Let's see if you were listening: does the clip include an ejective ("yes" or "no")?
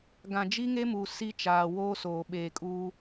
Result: yes